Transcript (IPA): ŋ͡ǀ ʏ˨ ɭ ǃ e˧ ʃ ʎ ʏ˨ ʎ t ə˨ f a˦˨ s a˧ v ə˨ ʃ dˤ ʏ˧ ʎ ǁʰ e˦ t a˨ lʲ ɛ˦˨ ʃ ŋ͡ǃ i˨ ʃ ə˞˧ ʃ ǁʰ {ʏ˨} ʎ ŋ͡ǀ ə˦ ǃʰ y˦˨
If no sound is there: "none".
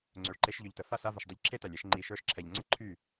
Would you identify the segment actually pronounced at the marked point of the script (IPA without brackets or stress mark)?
ɛ˨